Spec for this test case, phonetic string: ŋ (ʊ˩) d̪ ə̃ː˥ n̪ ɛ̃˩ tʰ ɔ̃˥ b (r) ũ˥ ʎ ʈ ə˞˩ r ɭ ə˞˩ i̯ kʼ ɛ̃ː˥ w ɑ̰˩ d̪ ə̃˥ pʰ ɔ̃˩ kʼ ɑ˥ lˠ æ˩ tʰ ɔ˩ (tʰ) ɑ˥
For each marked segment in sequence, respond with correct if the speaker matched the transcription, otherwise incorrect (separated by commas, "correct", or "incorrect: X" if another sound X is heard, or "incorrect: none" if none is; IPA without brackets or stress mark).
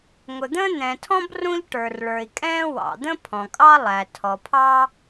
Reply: correct, correct, incorrect: pʰ